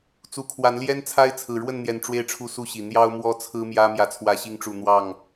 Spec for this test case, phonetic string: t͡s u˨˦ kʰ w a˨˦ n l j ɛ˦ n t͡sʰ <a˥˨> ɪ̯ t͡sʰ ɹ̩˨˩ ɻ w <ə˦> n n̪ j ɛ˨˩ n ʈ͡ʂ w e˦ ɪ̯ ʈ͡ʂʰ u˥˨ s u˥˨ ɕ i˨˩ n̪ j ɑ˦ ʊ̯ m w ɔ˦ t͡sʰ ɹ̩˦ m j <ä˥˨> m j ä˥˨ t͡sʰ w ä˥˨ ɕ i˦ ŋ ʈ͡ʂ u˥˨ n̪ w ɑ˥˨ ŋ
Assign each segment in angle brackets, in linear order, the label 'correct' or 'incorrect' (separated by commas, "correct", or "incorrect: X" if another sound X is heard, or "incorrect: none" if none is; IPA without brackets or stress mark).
incorrect: a˦, incorrect: ə˥˨, incorrect: ä˦